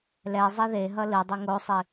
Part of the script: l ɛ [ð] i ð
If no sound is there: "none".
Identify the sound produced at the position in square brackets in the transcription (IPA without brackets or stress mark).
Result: zˤ